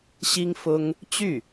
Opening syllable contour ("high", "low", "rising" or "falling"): high